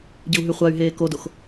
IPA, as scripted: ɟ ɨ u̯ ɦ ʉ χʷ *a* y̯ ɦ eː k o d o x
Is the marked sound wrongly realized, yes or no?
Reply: no